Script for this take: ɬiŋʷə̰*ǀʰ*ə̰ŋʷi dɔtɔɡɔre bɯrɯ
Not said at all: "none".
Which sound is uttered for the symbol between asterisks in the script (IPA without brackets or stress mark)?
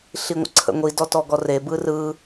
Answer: ǀʰ